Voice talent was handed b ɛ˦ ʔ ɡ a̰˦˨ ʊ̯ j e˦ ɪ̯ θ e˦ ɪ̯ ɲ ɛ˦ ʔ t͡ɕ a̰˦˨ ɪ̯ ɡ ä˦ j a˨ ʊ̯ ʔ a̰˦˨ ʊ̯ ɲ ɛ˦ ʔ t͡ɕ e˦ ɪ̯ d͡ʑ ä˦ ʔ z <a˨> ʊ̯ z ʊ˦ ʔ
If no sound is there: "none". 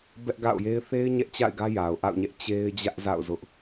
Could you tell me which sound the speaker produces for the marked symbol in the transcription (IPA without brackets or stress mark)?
a̰˦˨